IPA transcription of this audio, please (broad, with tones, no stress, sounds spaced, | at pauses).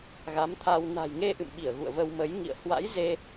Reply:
ɣ a˨˦ m t̪ʰ a˧ w n a̤˨˩ j ŋ e˧ ʔ ɨ̰˧˨ m ɓ i˧˩ ə̯ ɣ ṵ˧˨ ə̯ v ə˧ w m ə˨˦ j ŋ ḭ˧˨ ə̯ h w a̰˧˥ j z e˧